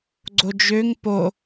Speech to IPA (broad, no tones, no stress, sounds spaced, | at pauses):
ɡ͡ǀ o d͡ʒ ø ŋ p o